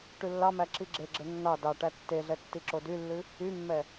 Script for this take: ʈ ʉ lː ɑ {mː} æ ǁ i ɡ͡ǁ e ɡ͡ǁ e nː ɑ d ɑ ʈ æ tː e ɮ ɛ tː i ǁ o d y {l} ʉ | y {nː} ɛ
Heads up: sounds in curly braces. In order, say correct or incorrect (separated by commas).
incorrect, incorrect, incorrect